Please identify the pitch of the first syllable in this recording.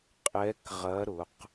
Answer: rising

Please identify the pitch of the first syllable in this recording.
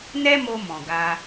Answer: high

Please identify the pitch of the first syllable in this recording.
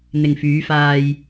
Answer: low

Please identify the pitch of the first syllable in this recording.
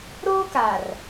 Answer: high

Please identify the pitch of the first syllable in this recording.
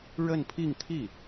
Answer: falling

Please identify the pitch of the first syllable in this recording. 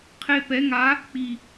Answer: high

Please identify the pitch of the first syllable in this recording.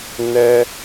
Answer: high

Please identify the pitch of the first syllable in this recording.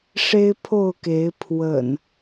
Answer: high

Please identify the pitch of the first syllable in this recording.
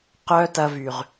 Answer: high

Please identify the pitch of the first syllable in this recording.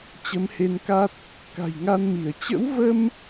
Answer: rising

